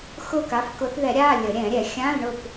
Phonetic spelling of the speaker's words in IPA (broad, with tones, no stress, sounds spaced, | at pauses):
x ʊ˥˨ k a˨˦ f k ʊ˨˦ θ ð ɛ˨˩˦ ɾʲ a˧˥˧ lʲ ə˨˩˦ ɾʲ ɛ̃˨˩˦ ɾʲ ɛ˨˩˦ xʲ ã˧˥˧ l ɳ ʊ˥˨ p